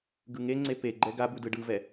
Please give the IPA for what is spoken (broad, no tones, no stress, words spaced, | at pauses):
ɡɯŋeŋ͡ǀe peɡ͡ǃɛ ɡabu dɯɖɯvɛ